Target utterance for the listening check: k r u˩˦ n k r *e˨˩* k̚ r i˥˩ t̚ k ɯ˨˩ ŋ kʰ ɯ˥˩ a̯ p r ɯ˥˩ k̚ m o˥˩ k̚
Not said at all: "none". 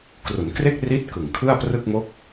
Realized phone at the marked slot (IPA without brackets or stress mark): e˥˩